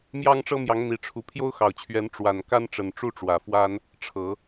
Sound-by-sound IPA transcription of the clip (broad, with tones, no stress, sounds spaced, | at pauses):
m j ɑ˦ ŋ ʈ͡ʂ ɤ˦ m j ɑ˨˦ ŋ n̪ i˨˦ ʈ͡ʂʰ u˨˦ pʰ j o˦ ʊ̯ x ɑ˨˩ ʊ̯ t͡ɕʰ ɥ ɛ˨˦ n ʈ͡ʂ w a˨˩ n k a˦ n ʈ͡ʂ ə˨˩ n ʈ͡ʂ u˦ ʈ͡ʂ w ä˨˩ f w a˦ n | ʈ͡ʂʰ ɤ˨˦